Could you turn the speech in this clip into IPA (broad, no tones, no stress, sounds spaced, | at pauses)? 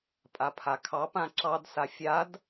pʼ a pʰ a kʰ ɑ p ã ǁ ɑ d s a fʲ a d